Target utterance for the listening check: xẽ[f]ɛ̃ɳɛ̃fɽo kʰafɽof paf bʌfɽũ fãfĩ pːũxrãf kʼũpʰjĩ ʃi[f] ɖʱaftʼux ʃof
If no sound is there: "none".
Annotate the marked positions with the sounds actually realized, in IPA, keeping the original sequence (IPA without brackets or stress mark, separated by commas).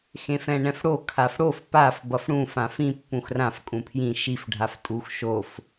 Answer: f, f